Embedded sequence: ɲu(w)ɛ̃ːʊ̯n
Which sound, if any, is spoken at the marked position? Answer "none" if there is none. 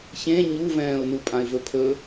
v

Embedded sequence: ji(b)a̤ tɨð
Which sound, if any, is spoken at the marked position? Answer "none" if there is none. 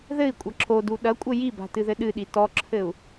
b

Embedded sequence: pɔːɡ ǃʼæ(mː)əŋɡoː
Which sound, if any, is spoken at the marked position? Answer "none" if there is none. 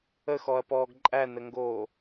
n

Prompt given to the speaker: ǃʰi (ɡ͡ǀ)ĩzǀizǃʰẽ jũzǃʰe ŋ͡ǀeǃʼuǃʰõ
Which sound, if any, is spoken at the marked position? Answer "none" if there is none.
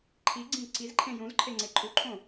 ɡ͡ǀ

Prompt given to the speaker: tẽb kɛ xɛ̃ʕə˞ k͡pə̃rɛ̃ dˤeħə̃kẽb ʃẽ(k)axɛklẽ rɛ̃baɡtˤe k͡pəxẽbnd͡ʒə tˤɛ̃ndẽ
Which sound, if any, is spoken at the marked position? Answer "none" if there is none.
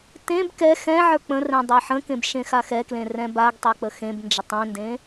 x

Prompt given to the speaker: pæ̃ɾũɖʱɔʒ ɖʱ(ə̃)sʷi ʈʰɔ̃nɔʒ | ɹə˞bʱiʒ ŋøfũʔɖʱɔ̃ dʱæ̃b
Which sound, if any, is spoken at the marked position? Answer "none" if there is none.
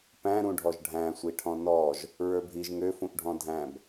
æ̃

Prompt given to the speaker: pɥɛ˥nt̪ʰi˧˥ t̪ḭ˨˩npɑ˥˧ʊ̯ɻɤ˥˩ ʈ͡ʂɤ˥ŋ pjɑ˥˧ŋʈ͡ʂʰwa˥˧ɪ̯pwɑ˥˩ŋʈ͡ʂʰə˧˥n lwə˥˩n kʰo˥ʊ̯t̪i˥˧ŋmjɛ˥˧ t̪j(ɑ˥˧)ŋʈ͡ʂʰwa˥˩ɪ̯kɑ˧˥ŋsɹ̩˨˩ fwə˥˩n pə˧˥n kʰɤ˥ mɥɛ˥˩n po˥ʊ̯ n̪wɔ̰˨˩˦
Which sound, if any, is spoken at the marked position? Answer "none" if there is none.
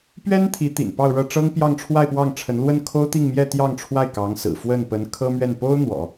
ɑ˥˧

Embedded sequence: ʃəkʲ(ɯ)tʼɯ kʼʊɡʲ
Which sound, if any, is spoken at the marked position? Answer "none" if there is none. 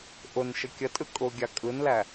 ə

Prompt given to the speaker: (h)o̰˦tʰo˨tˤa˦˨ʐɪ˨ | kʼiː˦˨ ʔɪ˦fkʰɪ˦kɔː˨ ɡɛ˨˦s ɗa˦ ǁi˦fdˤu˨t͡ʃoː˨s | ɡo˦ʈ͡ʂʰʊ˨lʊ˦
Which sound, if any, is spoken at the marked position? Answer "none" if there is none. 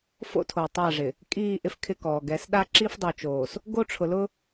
f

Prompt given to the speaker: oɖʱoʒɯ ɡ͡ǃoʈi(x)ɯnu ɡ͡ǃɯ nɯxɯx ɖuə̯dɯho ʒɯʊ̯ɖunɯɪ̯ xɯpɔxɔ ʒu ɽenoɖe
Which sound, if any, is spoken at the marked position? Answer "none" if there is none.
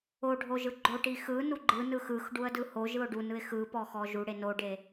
x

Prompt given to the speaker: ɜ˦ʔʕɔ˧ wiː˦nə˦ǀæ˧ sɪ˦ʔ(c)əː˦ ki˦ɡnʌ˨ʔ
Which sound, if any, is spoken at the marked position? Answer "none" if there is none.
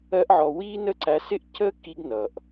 c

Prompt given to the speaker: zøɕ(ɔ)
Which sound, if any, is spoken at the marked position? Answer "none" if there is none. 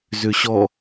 ɔ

